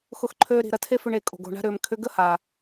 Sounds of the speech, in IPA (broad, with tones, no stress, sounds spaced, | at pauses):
x ʊ˧ x ǃʰ øː˧ ɾ i̤˨ ɾ ɐ˧ tʰ e˦ f ʏ˧ ɳ e˨ kʼ o̤˨ ɡ o̤˦˨ ɳ a̤˦ ɾ ʏː˨ m kʰ ʏ˧ ɡ ə˦ h a˨